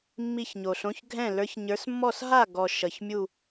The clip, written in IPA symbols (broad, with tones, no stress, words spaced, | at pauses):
mːi˥˨çɲo˨ɬõ˧˥˧ç ɡʱɛ̃˥˨ lə˞˨˦çɲə˞˨˦smːɔ˥˨s ɦa˥˨ɡɔ˨ ʃʌ˨ç mʲu˥˨